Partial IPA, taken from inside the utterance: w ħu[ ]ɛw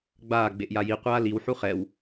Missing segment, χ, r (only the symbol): χ